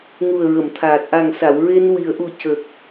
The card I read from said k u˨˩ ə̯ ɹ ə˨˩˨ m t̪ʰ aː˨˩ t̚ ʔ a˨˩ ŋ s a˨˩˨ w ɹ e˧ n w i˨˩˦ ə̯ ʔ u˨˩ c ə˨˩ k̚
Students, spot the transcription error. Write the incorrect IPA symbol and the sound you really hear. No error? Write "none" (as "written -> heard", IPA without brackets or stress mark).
k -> ŋ